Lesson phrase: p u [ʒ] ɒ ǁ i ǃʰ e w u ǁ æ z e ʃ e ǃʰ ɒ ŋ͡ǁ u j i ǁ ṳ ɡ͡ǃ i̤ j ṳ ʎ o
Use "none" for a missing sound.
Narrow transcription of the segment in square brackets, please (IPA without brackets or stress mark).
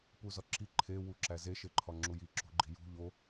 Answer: z